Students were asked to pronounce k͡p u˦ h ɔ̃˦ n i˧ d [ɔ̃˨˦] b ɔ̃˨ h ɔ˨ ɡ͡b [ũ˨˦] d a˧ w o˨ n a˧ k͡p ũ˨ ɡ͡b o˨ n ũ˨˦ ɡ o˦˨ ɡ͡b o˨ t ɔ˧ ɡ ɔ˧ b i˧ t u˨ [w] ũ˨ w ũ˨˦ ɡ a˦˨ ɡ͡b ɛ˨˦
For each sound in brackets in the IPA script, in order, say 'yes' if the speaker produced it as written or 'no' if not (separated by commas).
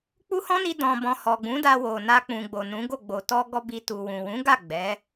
no, yes, yes